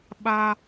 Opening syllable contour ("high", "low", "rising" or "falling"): high